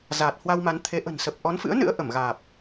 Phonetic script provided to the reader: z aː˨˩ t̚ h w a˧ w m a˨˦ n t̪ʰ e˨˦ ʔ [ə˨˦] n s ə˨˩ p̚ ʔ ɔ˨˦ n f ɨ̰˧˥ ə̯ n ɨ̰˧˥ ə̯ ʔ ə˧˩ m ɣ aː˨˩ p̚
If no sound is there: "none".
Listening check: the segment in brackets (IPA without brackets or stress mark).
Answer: ə̤˨˩